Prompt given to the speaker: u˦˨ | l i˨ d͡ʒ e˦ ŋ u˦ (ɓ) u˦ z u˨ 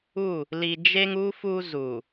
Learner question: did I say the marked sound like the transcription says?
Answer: no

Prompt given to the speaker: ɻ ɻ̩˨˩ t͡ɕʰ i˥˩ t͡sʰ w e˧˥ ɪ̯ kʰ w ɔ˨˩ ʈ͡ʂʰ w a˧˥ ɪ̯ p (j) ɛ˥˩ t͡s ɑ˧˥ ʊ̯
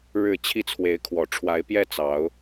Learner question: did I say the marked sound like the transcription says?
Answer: yes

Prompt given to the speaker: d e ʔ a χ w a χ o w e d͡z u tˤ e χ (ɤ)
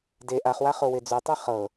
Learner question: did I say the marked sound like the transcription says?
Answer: yes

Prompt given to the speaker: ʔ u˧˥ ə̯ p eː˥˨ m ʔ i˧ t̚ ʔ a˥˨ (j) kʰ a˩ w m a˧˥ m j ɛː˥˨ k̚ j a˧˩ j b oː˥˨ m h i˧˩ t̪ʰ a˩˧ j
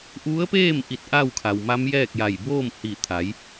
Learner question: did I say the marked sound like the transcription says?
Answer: no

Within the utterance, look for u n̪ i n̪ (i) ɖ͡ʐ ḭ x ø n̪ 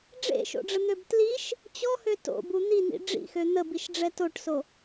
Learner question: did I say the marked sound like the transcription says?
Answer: no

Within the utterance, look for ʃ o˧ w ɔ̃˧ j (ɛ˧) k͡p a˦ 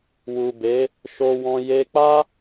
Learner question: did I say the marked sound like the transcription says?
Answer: no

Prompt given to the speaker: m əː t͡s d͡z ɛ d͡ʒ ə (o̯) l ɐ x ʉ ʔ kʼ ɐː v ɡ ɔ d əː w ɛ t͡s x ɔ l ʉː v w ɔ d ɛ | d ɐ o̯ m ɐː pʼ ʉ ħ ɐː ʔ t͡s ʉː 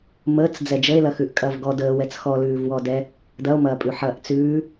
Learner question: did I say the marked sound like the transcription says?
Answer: no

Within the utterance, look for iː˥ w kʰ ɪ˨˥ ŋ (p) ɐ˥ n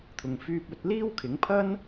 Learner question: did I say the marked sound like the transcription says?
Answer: no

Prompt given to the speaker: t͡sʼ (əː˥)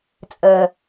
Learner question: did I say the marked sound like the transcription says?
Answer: no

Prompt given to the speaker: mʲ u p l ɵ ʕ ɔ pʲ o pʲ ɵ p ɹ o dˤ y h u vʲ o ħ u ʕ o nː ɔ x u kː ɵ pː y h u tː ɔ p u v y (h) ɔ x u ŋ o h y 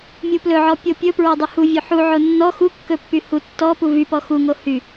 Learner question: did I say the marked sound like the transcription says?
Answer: no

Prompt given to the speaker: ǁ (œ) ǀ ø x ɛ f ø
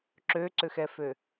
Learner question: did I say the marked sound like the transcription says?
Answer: no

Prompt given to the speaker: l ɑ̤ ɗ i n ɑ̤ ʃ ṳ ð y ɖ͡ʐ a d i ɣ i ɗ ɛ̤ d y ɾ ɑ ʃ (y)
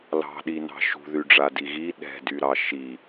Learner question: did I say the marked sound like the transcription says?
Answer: no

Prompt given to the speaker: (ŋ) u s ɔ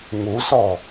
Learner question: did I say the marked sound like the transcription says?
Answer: yes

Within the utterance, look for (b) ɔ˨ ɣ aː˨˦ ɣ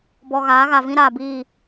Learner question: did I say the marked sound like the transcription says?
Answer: yes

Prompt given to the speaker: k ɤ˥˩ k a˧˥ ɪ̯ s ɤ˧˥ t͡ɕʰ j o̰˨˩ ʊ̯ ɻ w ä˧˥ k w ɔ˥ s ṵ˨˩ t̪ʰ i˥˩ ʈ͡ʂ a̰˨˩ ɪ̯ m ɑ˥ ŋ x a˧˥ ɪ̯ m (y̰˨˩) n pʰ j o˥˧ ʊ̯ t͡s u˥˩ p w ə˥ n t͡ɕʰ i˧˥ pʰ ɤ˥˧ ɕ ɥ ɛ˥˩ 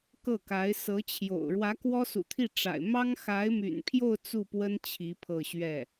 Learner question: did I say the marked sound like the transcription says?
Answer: yes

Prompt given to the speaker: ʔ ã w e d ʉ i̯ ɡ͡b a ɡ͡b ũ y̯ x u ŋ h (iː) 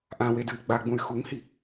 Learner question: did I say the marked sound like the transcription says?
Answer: no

